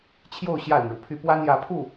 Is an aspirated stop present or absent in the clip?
present